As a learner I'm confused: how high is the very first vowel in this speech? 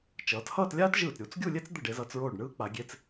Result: mid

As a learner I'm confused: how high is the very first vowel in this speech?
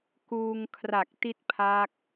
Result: high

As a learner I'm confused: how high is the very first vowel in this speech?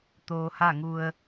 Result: mid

